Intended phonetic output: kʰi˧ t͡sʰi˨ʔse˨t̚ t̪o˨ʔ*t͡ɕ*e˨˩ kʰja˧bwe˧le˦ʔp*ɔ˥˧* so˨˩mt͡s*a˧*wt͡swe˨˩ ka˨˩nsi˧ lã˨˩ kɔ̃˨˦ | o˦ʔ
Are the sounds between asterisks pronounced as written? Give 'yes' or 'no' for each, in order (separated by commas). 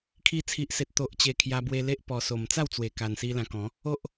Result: yes, no, no